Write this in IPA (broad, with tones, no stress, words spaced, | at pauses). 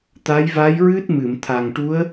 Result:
t̪a˧˥jva˧˥jɹɨ˦˥t̚ mɨ˨˩˨mt̪ʰa˨˩ŋ ʈu˧˥ə̯